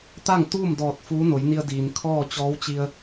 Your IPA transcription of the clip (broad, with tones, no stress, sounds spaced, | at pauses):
t̪ a˥˨ ŋ t̪ uː˥˨ m d ɔː˧˩ t̚ f uː˧˥ n o˩˧ j n i˧ ə̯ d iː˩ n kʰ ɔː˥˨ t͡ɕ ɔː˧˥ w t͡ɕ i˧ ə̯